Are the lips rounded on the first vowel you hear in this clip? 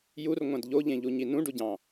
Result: yes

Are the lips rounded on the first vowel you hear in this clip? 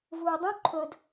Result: yes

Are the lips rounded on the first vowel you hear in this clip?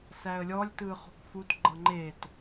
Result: no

